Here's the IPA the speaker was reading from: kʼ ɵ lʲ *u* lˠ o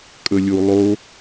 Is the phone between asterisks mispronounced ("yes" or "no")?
no